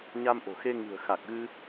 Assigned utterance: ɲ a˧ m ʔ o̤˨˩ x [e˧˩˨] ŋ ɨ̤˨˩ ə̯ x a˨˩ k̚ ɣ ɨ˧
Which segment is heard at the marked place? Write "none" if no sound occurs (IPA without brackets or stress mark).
e˧